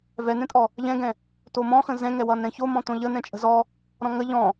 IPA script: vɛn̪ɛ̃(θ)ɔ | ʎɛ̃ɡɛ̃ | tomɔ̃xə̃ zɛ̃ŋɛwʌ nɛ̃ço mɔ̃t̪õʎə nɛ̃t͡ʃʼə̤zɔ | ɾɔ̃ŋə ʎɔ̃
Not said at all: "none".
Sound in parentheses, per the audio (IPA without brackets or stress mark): tʼ